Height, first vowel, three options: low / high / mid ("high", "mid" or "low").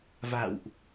low